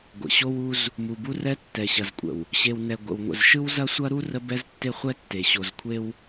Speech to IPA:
ɡʷə̰˨ ɕo˦wu˦z | mu˨bu˦rɛ˦ tːɛ˨ɕɐ˨zkʷʼə̰˨w | ɕe˨w nɛ˨ ɡʷə̰˨wŋʷə̰˨z ʃɯ˦wzɐ˦sʷɐ˦ɾu˦ rə˦bɛ˦z tːe˦χʷɛ˦tːe˨ ɕo˨zkʷʰe˦w

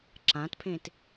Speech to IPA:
ǁãtpʰẽt

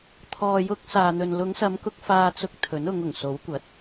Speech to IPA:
t̪ʰɔː˨jʊ˧k̚ saː˨n̪ɵ˨n lʊ˨˧ŋsɐ˨˧mkʊ˧k̚ faː˧t͡sʊ˧k̚ t̪ʰɵ˨˥nʊ˨˧ŋ ʊ˨˩ŋso˨˥wkʷɐ˨˥t̚

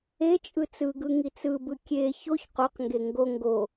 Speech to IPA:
e t͡ʃʼɯt͡sɯɡɯ ŋit͡sɯbɯ kʲe çoç qoqŋɡe ŋɡo ŋɡo

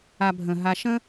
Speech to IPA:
abʱə̃ ɦaʃə̃

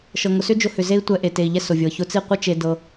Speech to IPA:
ʃɤ˨ŋʊ˨sʏ˦d͡ʒʊ˧ hʏ˨ze˧i̯ tʷɛ˧ʔe˨ te˨i̯ʎɛ˧ sʊ˨vʲɤ˨ çʊ˧t͡si˦˨qʷɨ˦t͡ʃe˧ dɤ˧

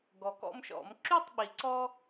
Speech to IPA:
ɡɔ˩kɔ̰˦mʃɔ̰˨˩˦m ǁy˥˨tˤɓi˩ǀɔ˦

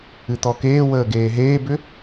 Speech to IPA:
ɨt̪ɔkeːwəː ɡeːɦeːbʏ

